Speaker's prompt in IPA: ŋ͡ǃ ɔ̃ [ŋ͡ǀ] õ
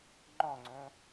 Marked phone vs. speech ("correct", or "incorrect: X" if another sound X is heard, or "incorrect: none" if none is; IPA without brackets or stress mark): correct